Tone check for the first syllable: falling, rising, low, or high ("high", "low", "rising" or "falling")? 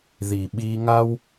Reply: low